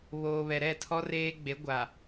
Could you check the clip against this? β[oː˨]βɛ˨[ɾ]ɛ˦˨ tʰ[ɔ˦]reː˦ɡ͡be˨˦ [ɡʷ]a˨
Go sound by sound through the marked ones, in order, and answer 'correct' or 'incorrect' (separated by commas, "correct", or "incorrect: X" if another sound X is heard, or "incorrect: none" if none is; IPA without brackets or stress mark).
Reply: correct, correct, correct, correct